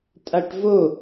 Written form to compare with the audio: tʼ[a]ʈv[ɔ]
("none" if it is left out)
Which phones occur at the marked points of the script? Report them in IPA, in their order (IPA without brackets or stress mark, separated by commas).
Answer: a, o